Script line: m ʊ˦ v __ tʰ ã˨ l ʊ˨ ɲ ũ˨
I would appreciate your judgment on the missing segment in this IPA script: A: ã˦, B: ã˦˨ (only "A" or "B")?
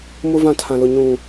B